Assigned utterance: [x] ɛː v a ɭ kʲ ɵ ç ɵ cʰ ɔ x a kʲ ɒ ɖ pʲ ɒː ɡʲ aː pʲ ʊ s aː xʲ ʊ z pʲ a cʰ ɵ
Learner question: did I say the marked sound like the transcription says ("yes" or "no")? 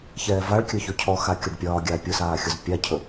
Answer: no